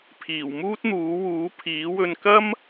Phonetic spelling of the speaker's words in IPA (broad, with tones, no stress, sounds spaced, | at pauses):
pʰ iː˨˩ w m uː˥ t̚ n̪ uː˨˥ w uː˨˥ pʰ iː˨˥ w ɵ˧ n k ɐ˥ m